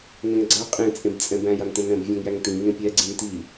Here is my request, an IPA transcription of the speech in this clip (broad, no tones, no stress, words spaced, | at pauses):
ŋɛ̃ŋɡ͡ǀa qʼẽ t͡sʼẽbt͡sʼɛ̃bæ̃j antɛ̃nɾɛ̃b vʲãŋjæŋtĩ ŋẽpʲɛ ɡ͡ǀĩnti